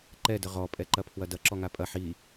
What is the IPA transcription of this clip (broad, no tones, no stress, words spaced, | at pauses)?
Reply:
ǃɛdə ʁɔpʼɛǃɐpʰwɐ dɐǁɔŋa pʼɐ ħi